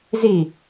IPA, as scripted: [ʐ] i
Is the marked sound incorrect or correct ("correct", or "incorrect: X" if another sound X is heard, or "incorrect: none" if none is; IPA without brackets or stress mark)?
incorrect: z